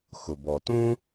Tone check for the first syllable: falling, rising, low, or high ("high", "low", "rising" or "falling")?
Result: low